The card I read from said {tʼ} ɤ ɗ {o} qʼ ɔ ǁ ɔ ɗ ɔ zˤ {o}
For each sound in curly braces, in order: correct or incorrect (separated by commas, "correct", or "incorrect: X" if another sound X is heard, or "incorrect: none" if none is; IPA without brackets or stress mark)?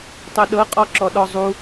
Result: incorrect: tˤ, incorrect: ɤ, incorrect: u